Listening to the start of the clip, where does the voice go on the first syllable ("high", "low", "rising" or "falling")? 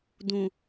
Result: low